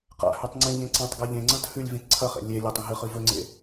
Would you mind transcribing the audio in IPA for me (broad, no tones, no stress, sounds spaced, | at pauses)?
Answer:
q a̰ h ʉ tˤ ŋ͡ǀ ĩ ʎ ẽ ǀ ã tˤ ɡ a ʎ ẽ ŋ͡ǀ ɐ̃ t h ʉ lʲ v ĩ t ǀʰ ɐ χ ḛ lʲ e lʲ o tˤ ĩ ɦ ɨ χ ɨ v ɵ ŋ͡ǀ ḛ